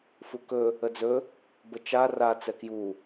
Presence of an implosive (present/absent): absent